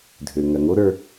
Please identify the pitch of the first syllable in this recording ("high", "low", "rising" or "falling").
low